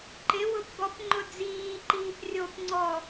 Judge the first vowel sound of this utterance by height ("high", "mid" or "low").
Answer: high